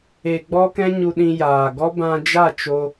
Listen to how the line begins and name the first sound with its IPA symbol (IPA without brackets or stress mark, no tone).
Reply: e